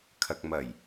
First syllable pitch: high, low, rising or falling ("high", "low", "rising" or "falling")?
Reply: low